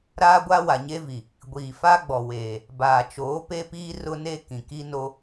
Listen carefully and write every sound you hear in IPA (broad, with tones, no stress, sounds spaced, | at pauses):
ɾ aː˦ ɡʷ a˦ w a˨ ɲ e˦ v i˨ | ɡʷ iː˨ f aː˦ ɡ͡b ɔ˨ w eː˨ | b aː˨ t͡ʃ oː˨˦ p e˦ p iː˦ r ʊ˦ n e˦ k ĩ˨ k i˦ n o˦